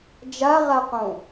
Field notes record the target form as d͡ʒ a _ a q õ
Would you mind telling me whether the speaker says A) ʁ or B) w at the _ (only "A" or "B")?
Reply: A